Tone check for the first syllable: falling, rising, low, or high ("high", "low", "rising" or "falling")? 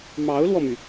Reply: rising